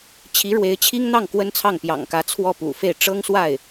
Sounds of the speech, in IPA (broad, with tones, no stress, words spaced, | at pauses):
t͡ɕʰi˧˥ɻwe˧˥ɪ̯t͡ɕʰi˥ŋn̪ɑ˥˩ŋ kwə˥nt͡sʰɑ˥˩ŋpjɑ̰˨˩ŋkä˧˥ t͡sʰwɔ˥˩pṵ˨˩fe˥˩ɪ̯ ʈ͡ʂɤ˥ŋswa˥˩ɪ̯